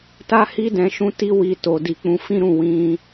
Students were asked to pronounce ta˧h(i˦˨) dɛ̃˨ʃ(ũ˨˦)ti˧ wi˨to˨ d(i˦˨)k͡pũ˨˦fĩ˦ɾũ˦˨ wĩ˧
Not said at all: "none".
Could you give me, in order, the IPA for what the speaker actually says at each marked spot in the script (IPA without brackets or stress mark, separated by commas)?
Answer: i˧, ũ˨˦, i˨